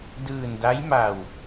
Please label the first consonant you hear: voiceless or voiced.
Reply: voiced